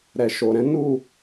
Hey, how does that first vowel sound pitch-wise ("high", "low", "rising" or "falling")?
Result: low